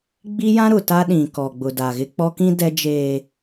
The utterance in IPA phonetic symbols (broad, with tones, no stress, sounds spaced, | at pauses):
ɡ͡b i˦ j ã˦ ɾ ʊ˨ t a˦ ɗ ĩ˨ k ɔ˨ ɡ͡b ʊ˨ d a˨ ɣ ɪ˦ k͡p ɔ˦ k ĩ˦ d ɛ˦ d͡ʒ eː˨